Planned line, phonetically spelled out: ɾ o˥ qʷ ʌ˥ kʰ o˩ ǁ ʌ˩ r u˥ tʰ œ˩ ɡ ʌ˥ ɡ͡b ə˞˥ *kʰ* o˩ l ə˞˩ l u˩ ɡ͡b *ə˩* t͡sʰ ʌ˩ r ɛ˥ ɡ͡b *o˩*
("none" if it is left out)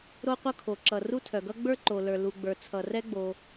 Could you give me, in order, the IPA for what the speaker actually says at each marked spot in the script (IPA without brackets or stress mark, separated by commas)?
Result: ǃ, ə˞˩, o˩